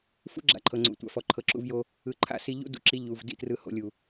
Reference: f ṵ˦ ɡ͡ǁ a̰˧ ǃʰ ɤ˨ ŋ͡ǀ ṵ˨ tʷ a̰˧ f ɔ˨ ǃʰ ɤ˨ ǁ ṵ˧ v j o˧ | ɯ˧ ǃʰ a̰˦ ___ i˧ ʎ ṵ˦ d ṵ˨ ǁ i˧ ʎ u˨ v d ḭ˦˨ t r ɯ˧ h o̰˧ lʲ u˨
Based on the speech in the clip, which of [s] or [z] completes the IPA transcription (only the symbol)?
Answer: s